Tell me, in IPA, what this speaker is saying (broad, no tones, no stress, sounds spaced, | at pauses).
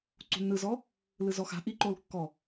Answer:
ǀ ṳ nː ɯ z ɔ | l ɯ z ɔ x a̤ ʔ i ǃ o l kː ɔ